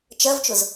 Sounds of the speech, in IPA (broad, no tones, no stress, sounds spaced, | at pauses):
t͡ʃ ɜ v t͡ʃ ʊ z